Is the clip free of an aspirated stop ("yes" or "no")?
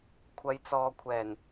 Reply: no